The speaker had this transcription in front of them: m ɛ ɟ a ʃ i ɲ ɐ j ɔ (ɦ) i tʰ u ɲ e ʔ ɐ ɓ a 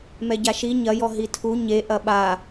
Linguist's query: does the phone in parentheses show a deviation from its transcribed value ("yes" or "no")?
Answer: no